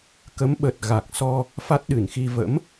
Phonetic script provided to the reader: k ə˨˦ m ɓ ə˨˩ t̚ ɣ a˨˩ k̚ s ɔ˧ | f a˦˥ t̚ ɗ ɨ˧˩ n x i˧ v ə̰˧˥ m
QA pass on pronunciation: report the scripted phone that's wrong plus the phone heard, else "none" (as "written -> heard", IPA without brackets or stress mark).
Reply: none